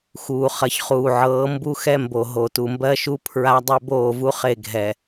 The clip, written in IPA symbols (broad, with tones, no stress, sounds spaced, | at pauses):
x uː˨ χ ɐ˨ ç χ uː˨ ʕ ɤː˨˦ m b u˦ x ɛ˦ m b o˨ ɦ o˨ t u˨ m b ɜ˦ ʃ u˦ pʰ ɹ a˦ dˤ ɛ˦ b oː˦˨ v u˦ χ e˦˨ ɡʱ ɛ˨